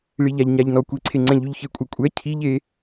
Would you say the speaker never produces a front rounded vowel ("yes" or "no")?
no